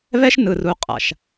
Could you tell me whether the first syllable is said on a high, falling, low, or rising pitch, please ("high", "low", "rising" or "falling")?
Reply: high